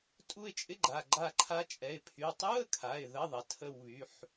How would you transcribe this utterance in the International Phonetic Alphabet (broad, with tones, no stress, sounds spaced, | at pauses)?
tʼ u˦˨ ɪ̯ t͡ʃʼ ɪ˧˥˧ ɡ͡ǃ a˩˧˩ ɡ͡ǃ a˦˨ ǃʰ a˧˥ t͡ʃʼ ɛ˩˧˩ ɪ̯ pʰ y˩˧˩ tˤ u˧˥˧ ə̯ kʰ a˩˧˩ ɪ̯ ð ə˧˥˧ ðˤ ɐ˩˧˩ tʰ ə˦˨ w β y˩˧˩ ħ